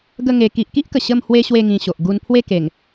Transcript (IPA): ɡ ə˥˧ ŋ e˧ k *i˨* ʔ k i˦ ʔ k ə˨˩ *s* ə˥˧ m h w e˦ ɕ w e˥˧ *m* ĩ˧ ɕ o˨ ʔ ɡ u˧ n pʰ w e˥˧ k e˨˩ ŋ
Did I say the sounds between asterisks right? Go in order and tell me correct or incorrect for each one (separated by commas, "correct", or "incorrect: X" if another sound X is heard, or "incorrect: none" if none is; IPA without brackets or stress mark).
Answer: correct, incorrect: ɕ, incorrect: ŋ